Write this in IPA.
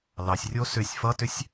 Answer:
l ɑ sʲ rʲ o s ʏ sʲ f ʌ t ʏ sʲ

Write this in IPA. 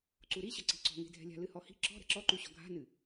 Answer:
ǀ u ɾ i ɕ ɐ ǀ i̤ ǀ ɔ̤ ŋ e̤ dʱ ɛ̤ lʲ a̤ l ɨ h ɔ h i̤ ǁ ɔ̤ ɾ ɛ̤ ǁ ɔ ǃ u ɕ ɔ̤ ɡʱ a̤ n ɨ

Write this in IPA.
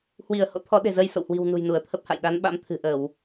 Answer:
h w i˧˩ ə̯ h o̰˧˥ t̪ʰ ɔ˨˦ ɗ e̤˨˩ z ə˧ j s o̰˧˨ w h w i̤˨˩ w n ṳ˨˩ j n u˧˩ ə̯ t̪ʰ ə˦˥ p̚ h a̰˧˨ j ɗ a˨˦ n ɓ a̰˧˥ m t̪ʰ ɨ̤˨˩ ʔ ə˧˩˨ w

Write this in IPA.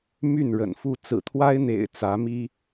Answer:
m y˥˨ n ɻ ə̰˨˩ n f u˥˨ t͡s ɹ̩˨˩ t̪ʰ w a˦ ɪ̯ n̪ ḛ˨˩ ɪ̯ t͡s ä˨˦ m i˦

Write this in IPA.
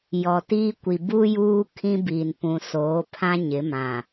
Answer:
j ɔ˨ t iː˦ kʷ i˨ b u˦ j uː˦ kʰ ĩ˦ b iː˨ n p ũ˨ s oː˨˦ pʰ ã˦ ɲ ɪ˨˦ m ã˨

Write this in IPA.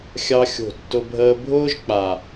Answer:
xʲ ɑ˦ xʲ o̤˦˨ tː ʊ˦ bʱ əː˦ bʱ ʊː˦ ʒ k͡p a˨

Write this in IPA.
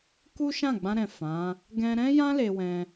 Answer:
k u˦ ʃ ã˦˨ ɡ͡b ã˧ ɾ ɛ̃˨ f ã˨˦ | ɡ ɛ̃˧ ɾ ɛ̃˦ j ã˦ l e˧ w ɛ̃˧

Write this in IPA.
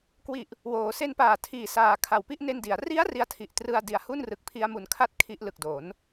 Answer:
k w i˨˩ ʔ | w oː˩˦ s e˧ n p aː˨˩ tʰ iː˨˩ s aː˨˩ kʰ a˨˩ w p i˥˩ ʔ n e˧ n d i˩˦ a̯ r i˦˥ a̯ r i˥˩ a̯ tʰ i˦˥ ʔ t r ɯ˥˩ a̯ d i˨˩ a̯ h u˥˩ n r ɯ˨˩ k̚ pʰ i˧ a̯ m u˨˩ n kʰ a˦˥ t̚ kʰ i˦˥ ʔ l ɯ˨˩ k̚ d o˩˦ n

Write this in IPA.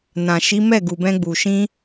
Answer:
n ã˨ ʃ i˨˦ m ɛ˦˨ ɡ u˨ b ɛ̃˧ ɡ͡b u˨ ʃ ĩ˧

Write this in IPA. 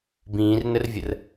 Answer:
b ĩː r n ə r vʲ ə r

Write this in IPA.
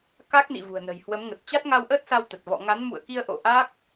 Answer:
k a˦˥ k̚ n ḭ˧˨ v ṳ˨˩ ə̯ n ə̤˨˩ j h w ə˨˦ m ŋ ə˨˩ t̚ t͡ɕ a˦˥ t̚ ŋ a˧ w ʔ ə˦˥ t̚ s a˧ w t̪ ə˨˩ t̚ v ɔ̰˧˨ ŋ a˨˦ n m ṵ˧˨ ə̯ k i˧ ə̯ ʔ o̰˧˨ ʔ a˦˥ k̚

